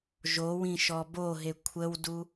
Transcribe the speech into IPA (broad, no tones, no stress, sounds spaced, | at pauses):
ʒ o w ĩ ʃ ɔ b o ɦ e kʷʰ ə w d u